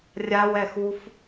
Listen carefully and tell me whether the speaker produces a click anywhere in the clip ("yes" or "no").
no